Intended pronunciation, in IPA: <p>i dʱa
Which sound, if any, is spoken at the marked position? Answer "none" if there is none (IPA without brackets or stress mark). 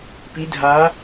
p